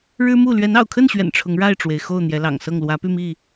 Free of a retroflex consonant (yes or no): no